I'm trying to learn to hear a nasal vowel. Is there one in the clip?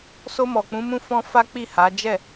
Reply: yes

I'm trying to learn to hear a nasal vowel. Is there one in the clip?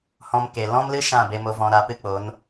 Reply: yes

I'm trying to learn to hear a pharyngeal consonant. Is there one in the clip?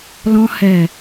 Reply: no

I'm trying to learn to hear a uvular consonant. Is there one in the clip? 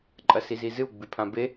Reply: no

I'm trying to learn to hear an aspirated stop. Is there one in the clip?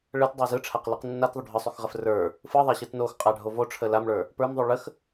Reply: yes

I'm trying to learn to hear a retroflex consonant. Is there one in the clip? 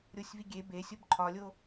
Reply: no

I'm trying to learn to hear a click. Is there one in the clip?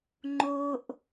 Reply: yes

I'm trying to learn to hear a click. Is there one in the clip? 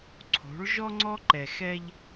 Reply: yes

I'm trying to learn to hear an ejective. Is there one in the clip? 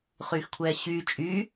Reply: yes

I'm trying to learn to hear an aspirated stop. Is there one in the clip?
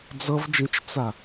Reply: no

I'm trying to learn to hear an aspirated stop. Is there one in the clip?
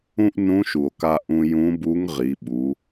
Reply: no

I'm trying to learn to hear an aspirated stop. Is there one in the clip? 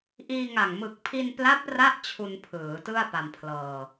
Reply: yes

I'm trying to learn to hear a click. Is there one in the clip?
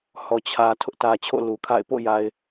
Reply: no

